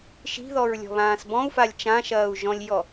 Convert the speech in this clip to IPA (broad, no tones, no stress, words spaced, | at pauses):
ʃi̤ðɔɹlʲɔ̤βãːs bɔ̃u̯falʲ t͡ʃãʃɐːu̯ ʒɔ̃lʲjɔ